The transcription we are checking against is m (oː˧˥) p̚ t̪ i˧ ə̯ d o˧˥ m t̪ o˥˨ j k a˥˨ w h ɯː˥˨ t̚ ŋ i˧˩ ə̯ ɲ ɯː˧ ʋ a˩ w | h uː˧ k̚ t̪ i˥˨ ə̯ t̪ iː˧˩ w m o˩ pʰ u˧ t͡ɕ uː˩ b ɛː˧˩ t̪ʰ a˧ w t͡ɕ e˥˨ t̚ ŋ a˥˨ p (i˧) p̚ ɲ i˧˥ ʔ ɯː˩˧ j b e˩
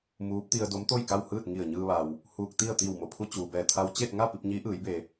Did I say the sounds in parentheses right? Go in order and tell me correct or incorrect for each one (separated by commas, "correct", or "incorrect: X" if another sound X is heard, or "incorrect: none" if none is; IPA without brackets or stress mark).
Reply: incorrect: uː˧˥, correct